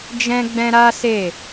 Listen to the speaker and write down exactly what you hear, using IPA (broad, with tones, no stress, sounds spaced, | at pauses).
d͡ʒ ɛ̃˧ ɡ͡b ɛ̃˧ ɾ a˦ s e˦˨